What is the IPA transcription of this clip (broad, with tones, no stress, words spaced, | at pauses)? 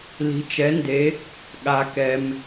li̤˩˧t͡ʃɛ˩˧nde˩˧ | ɠa˩kɛ˩m